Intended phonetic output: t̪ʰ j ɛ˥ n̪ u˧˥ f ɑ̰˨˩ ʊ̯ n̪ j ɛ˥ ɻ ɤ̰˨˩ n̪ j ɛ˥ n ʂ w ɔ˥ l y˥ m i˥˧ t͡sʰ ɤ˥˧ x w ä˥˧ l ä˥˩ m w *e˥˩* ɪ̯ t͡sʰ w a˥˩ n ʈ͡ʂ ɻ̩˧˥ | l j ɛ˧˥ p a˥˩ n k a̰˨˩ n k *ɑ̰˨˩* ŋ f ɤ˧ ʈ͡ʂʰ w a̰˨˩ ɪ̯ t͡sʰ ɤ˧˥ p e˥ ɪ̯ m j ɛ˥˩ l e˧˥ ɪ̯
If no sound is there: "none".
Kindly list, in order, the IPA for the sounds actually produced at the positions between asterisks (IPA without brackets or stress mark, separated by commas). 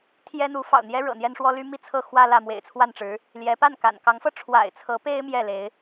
ḛ˨˩, ɑ˧˥